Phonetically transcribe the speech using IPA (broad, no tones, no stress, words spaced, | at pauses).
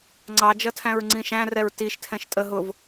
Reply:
ŋ͡ǀɑd͡ʒʌ tʰæ̃ɹŋ͡ǀĩʃæ̃rɛɹ tiʃtʰɛ̃ʃ tʼə ɦʊv